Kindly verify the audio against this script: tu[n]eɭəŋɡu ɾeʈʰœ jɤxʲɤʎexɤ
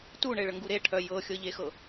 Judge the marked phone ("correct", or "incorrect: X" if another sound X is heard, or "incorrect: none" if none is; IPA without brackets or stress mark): incorrect: ɳ